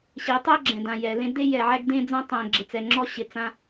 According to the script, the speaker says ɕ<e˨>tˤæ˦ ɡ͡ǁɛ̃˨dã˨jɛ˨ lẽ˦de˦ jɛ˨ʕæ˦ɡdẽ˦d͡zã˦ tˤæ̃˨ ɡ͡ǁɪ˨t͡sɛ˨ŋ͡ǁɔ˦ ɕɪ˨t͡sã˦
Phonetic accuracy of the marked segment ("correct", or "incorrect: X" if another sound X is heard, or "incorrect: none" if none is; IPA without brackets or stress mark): incorrect: e˨˦